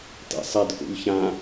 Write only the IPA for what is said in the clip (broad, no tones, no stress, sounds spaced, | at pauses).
t ḛ sˤ e d k ṵ ʎ ç ã